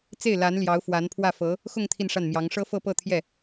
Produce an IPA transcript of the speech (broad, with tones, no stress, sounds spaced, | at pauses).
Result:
t͡s e˥˩ ɪ̯ l a˧˥ n l j ɑ˧˥ ʊ̯ f w a˧˥ n pʰ w ä˥˩ f ɤ˧˥ | x ʊ˥˧ ŋ t̪ʰ i˥˧ n ʂ a˥˩ n m j ɑ˧˥ ŋ ʂ ɤ˥ f ɤ˥˧ p ɤ˥˧ t̪ʰ j ɛ˥˩